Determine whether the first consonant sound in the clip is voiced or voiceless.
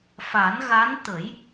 voiceless